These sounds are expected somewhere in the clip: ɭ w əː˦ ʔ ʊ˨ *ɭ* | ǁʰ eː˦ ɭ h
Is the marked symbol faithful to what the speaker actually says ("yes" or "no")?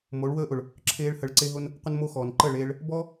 yes